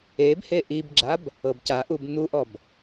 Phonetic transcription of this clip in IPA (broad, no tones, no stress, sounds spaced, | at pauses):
e b h e ʔ i b ɡ͡ǁ a b | ɤ b c a ʔ u b n̪ u ʔ ɔ b